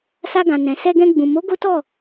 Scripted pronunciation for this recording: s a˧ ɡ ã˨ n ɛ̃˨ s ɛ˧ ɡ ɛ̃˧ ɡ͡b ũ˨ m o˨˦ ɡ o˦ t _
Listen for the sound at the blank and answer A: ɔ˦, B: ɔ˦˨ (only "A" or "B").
B